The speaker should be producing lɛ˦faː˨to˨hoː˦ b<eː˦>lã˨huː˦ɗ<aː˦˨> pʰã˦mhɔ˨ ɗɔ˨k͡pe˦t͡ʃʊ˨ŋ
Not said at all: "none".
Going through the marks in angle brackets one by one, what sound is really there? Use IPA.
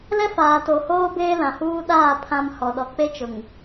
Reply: eː˦, aː˦˨

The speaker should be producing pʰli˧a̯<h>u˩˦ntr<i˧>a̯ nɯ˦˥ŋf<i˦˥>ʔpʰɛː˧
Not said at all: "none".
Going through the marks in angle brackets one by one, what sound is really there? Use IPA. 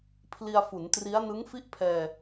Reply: f, i˦˥, i˥˩

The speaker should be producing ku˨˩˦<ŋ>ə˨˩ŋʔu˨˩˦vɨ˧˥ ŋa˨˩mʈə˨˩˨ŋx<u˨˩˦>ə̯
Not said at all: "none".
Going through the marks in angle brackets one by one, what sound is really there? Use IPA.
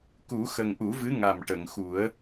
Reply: x, u˨˩˦

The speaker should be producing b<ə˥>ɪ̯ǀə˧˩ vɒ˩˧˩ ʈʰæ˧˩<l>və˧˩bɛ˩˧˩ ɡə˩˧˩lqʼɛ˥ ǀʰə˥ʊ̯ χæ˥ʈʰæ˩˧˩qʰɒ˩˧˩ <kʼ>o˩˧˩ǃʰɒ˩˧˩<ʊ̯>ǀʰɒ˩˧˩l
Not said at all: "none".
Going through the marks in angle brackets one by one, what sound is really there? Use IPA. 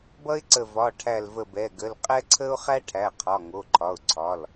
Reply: ʌ˥, l, ŋ, ʊ̯

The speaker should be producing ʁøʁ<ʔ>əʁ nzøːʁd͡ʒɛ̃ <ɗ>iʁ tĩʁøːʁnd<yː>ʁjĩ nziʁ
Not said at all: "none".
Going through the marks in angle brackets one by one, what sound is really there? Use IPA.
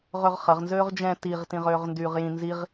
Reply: χ, t, yː

